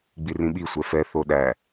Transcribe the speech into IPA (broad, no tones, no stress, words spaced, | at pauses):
ɡ͡birĩɓi sʷɛfɛ θoɗæ